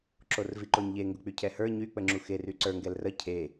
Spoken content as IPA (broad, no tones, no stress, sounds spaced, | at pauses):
ǁ o r v i ǃ o ɲ ʎ e ŋ ɡ ʊ k͡p y cʰ ɛ h ə˞ ɲ y k͡p ə ŋ͡ǁ u x e r y ǀ ə˞ ŋ ɡ ɛ l r ə cʰ e